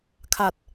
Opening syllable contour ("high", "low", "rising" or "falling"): low